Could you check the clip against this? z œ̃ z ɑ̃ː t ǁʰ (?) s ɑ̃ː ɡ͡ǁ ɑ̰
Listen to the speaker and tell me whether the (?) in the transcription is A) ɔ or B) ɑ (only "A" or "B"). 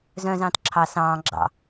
B